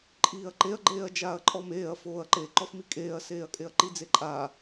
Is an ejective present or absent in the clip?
present